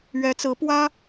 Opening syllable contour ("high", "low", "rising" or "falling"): rising